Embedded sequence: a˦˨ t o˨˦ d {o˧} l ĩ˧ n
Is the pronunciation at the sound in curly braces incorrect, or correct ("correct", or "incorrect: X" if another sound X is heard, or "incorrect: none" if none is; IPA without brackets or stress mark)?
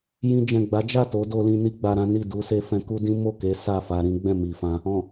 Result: correct